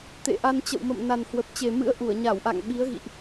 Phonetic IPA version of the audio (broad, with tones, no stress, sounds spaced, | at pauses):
t̪ ḛ˧˨ ʔ a˧ n t͡ɕ ə̰˧˨ w m ə̰˧˨ m n a˨˩ n h w ə˨˩ p̚ t͡ɕ e˨˩ m ɨ̰˧˥ ə̯ ʔ u˧˩ ə̯ ɲ a˧˩ w ʔ a̰˧˨ ŋ ɓ i˨˦ ə̯ ɣ ḭ˧˨ ʔ